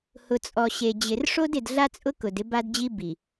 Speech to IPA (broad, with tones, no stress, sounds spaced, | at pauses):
h ʊ˨ t͡sʼ ɔ˨ ɕ e˨ d͡ʑ ɪ˨ r ʂ o˦ d ɪ˨ d ɮ a˦ t͡sʼ ʊ˦ k ʊ˨ d ɪ˦ b a˦ d d͡ʑ i˦ b i˨